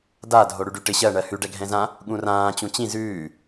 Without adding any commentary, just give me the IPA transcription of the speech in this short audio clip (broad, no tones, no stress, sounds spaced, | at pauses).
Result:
d a dʱ o ɽ ʉ ɖ y ʈ ɪ ɕ ɜ ɳ ɜ h ʉ ɖ ɛ ɡʱ ɛ̃ z ã | ɠ ũ r ãː t͡ɕ ũ t͡ɕ ĩ z ʉː